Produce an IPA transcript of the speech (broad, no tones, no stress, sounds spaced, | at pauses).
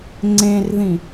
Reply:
ŋ͡ǀ ẽ r ð ĩ